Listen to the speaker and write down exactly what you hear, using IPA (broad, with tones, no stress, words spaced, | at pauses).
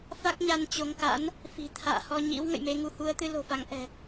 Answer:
fa˦˥k̚ɲa˧n t͡ɕo˨˦ŋka̰˧˥n | fi̤˨˩ t̪ʰa̰ː˧˨hɔ˧ɲḭ˧˥w ŋə̰˧˨jme˧ŋu˧ hu˨˦ə̯t̪ɨ˧lo̤˨˩fa˨˦ŋ ʔɛ̤˨˩